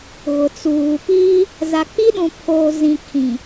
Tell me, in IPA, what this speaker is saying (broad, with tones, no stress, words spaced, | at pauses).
ɣʊ˨t͡suː˨ piː˦ | za˨k͡pi˦ɗũ˨ pʰoː˨zĩ˨ kʰĩ˨